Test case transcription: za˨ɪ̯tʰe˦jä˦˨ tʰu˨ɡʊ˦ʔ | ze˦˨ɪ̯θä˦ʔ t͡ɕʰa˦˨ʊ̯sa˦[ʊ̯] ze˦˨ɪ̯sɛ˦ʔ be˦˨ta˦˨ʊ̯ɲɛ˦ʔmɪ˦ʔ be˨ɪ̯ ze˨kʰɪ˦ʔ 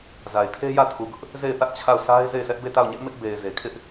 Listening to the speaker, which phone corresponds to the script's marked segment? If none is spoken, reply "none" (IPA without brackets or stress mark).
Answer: ɪ̯